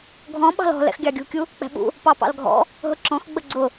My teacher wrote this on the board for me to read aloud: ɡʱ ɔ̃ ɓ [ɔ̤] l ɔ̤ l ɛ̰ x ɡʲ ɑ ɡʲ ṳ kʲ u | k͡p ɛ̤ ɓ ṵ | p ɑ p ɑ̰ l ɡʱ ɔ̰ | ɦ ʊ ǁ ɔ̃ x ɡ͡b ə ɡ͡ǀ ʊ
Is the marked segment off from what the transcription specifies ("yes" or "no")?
yes